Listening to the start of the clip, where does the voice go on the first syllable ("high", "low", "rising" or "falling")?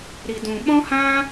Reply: low